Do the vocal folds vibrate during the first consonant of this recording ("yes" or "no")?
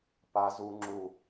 no